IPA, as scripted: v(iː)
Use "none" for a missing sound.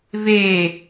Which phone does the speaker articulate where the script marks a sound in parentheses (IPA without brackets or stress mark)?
eː